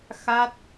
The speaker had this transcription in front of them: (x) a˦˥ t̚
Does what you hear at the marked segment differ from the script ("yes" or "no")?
no